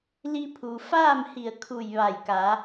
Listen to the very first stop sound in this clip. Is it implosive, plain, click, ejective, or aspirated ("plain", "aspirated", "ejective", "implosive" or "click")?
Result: aspirated